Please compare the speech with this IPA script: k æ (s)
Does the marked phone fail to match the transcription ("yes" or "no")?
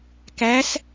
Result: no